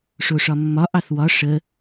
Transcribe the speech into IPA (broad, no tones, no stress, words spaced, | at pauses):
ʂoʂɒmːɒ ʔɑθwɒ ʂə